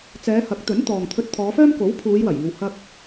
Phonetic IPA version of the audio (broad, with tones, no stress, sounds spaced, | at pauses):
t͡s ɛː˨˧ h ɐ˨˥ k̚ t̪ ɵ˨˥ n t̪ ɔː˨ ŋ t̪ʰ ɵ˧ t̚ t̪ʰ ɔː˨˧ f œː˥ m k o˨˥ w pʰ uː˨˧ j w ɐ˨˩ j iː˨ w h ɐ˧ k̚